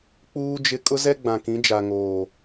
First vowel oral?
yes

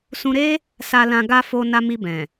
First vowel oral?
no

